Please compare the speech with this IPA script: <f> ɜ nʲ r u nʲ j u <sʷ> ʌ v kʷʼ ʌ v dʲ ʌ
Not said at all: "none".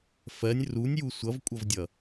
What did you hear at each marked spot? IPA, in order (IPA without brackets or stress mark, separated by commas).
f, sʷ